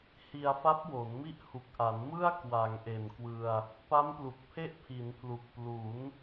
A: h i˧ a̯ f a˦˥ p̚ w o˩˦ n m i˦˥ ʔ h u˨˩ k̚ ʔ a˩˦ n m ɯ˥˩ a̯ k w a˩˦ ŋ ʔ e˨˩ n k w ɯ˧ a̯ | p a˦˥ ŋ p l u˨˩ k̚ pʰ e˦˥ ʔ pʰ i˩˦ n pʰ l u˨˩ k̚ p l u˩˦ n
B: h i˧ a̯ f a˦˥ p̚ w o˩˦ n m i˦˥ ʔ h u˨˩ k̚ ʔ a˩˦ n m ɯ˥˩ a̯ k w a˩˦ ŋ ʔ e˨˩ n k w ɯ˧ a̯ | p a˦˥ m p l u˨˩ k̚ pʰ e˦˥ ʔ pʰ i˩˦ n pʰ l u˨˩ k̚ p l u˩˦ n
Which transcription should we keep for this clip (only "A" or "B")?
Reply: B